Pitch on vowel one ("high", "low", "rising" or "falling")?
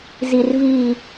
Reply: low